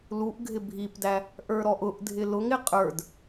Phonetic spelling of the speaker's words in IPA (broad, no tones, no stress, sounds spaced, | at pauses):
l u ʔ ɡʱ ɪ bʱ i p d æ | ʔ ə˞ ɾ ɔ ʔ ʊ ʔ dʱ ɪ l ʊ ŋ ɪ qʼ ə˞ d